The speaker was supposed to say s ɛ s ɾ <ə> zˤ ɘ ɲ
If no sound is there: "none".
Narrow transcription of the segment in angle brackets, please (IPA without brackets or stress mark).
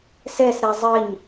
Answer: ɛ